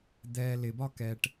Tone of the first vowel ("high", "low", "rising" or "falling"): low